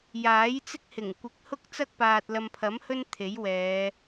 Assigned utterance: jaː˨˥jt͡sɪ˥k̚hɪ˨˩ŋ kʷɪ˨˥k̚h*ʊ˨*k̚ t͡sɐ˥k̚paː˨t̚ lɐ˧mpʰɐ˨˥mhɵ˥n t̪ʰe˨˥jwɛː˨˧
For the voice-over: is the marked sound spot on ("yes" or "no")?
no